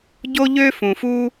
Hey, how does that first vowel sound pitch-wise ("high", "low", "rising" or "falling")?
high